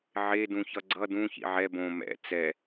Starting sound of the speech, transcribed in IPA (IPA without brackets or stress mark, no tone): ʕ